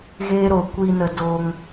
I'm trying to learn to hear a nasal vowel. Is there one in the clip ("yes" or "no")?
no